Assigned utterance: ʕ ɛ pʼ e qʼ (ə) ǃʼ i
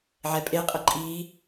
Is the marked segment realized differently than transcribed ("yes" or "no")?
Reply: no